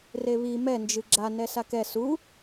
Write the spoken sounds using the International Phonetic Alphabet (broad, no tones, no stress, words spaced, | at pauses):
reβi mɛ nd͡ʒɨɡ͡ǁa nɛsakɛ su